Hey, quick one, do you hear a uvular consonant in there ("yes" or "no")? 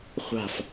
yes